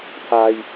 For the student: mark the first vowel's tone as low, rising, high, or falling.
low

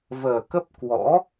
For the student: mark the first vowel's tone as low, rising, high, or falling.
low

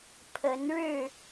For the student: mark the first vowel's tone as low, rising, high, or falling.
rising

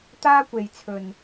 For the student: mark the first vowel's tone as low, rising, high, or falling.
high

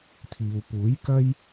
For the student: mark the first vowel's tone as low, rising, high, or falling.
low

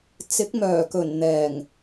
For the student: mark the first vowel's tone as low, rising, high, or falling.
rising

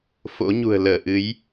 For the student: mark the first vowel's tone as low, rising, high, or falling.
rising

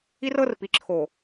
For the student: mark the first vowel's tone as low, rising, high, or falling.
high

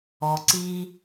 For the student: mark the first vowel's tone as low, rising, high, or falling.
low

